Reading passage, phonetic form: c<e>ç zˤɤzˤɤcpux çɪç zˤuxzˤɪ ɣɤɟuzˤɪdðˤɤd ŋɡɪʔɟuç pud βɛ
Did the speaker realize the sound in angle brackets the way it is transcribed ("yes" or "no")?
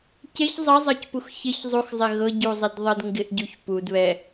yes